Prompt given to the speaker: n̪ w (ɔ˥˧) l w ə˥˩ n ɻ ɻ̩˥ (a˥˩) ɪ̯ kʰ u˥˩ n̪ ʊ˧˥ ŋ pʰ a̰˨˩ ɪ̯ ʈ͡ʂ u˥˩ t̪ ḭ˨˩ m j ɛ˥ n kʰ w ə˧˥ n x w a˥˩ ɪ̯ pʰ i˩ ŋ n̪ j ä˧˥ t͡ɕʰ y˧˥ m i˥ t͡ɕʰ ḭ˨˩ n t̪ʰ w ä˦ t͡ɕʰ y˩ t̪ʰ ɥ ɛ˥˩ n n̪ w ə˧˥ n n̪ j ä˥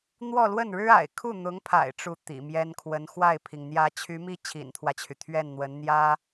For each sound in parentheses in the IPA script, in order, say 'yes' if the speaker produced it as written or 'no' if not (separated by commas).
yes, no